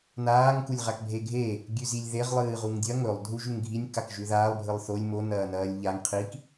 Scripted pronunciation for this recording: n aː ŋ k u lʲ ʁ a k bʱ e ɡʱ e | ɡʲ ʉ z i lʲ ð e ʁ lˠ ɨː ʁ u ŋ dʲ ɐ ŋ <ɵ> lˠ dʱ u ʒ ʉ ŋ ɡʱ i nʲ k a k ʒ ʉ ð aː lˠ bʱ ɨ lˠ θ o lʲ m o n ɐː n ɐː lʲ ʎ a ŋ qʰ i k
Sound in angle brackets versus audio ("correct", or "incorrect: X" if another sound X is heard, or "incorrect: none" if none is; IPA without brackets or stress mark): correct